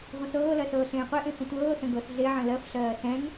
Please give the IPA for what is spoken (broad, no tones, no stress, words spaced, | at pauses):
ʁʷə̃sɤːlɜ sɤːɬẽːqʷeʔẽ fə̃tʷɤːsə̃ ɡɤs ɮeʕə̃ lɜfɬɜː sɛ̃ŋ